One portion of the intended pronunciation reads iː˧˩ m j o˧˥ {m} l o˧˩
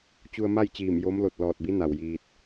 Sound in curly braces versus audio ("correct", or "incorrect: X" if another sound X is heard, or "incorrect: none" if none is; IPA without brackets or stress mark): correct